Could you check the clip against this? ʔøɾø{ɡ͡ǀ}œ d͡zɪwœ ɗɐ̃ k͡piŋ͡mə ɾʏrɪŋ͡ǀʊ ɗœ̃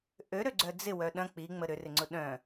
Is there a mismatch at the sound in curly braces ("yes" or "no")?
no